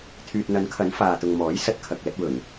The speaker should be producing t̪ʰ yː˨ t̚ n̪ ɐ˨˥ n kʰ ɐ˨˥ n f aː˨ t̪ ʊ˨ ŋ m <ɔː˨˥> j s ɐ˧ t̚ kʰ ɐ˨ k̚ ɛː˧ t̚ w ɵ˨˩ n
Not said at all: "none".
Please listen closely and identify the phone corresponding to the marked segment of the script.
ɔː˨˥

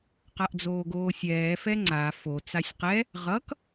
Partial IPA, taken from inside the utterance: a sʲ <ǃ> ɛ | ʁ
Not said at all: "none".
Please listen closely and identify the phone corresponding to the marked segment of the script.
q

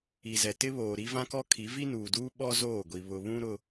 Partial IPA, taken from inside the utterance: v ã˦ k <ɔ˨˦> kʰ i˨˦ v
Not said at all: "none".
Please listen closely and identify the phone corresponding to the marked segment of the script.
ɔ˦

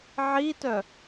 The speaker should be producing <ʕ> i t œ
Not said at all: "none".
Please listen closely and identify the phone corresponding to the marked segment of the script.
ʕ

